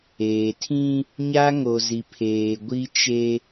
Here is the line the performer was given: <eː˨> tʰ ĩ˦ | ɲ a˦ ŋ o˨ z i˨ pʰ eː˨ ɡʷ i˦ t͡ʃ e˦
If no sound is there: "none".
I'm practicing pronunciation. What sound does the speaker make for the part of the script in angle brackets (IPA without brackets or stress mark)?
eː˨